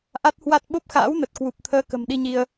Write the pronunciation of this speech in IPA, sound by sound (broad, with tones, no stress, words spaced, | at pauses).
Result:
ʔa˦˥t̚hwa˦˥t̚ ɓo˦˥p̚xa̰ː˧˥wnə˨˩t̚ kwu˨˩p̚t̪ʰəː˧kə̤˨˩m ɗi˧ɲi˧ə̯